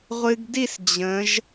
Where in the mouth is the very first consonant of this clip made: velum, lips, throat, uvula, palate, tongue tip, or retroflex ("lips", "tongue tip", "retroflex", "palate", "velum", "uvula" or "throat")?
uvula